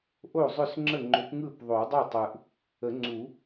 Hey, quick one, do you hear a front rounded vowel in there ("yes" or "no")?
yes